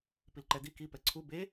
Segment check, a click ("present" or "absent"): present